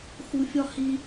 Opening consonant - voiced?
no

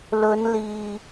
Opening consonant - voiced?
yes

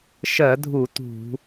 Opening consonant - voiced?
no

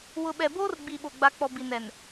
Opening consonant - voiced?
yes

